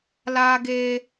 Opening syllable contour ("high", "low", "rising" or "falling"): high